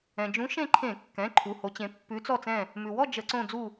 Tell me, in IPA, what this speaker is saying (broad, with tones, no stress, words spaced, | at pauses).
ɛ̃˩d͡ʒũ˨˦ ʃẽ˦˨ǃʰẽ˧˩˧kːɛ̃˩˧˩ ǃʰu˩˧˩ho˨˦t͡ɕẽ˨˦ pːʉ˨˦ t͡sɔ˦˨t͡sɛ̃˦˨ | mʉ˩wɔ˦˨ d͡ʒə˧˩˧ǀõ˦˨ d͡zu˦˨